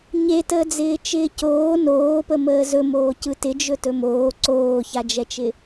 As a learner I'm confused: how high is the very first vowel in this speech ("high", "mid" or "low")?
mid